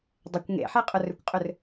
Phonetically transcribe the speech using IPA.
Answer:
dˤɪkʷ ŋḛħɛ qʼʊrʏkʷqʼʏr

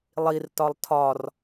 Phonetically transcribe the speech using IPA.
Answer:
lˠirtɒlˠ tʰɒr

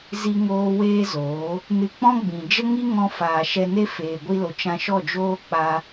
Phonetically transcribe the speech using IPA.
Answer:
zi˧ŋoː˧ weː˦zoː˨˦ | nɨ˧ k͡pɔ̃˦ɡ͡bĩ˨ d͡ʒə˦ŋi˦ ŋɔ̃˧faː˨ ʃɛ˧ne˦ feː˨ɡʷi˧lo˨ t͡ʃã˧ʃɔ˦˨d͡ʒoː˦ k͡pa˦

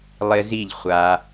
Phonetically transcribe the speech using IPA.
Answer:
lˠɪ˦ zi˦˨ʎχʷa˧

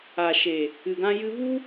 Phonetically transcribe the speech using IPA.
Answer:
a˨ʃe˨ | ɨ˨ɡã˧jɨ˧vu˦

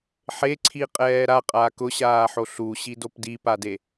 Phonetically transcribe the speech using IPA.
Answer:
ħeǀʰiqʼɛː ɾaqʼaːk ʊɕaːħo ɬuɕidop dipade

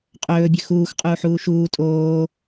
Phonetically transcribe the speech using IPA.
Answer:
qʼɵːbʲɵ xuːxqʼuːħuː ʃuː tʼoː

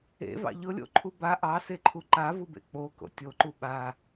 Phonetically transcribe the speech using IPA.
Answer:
ḛvɑ̰ ʎʊlʲo̰ǃʰu ba ʔɑseǃʰu ǃavubḛ k͡poko̰ tʲoǃu ɓa

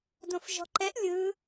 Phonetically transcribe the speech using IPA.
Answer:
dõfʒɔ̤ǃɛʔ lʲɯ

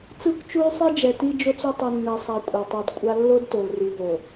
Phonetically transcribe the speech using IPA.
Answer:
t͡sɯ˦kʷt͡ʃu˦y̯sˤi˦ d͡ʒɛ˨ti˦d͡ʒo˦t͡su˦ tˤɯ˦nːɛ˦sˤa˦ kʷʼɛ˨tˤu˨dkʷʼa˦ lːo˦dto˨lri˨ɦo˨

